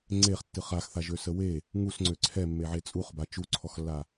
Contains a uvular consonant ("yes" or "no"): yes